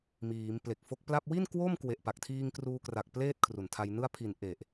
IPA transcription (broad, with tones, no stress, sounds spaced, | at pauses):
m iː˩˦ m p l e˨˩ k̚ f o˦˥ k̚ p l a˥˩ p̚ w i˥˩ n k w o˥˩ m k w e˨˩ ʔ p a˨˩ k̚ tʰ iː˧ ŋ k r uː˧ k r a˨˩ k̚ p l eː˥˩ t̚ kʰ r u˨˩ n tʰ a˧ j n ɯ˥˩ a̯ pʰ i˨˩ n ʔ e˨˩ ʔ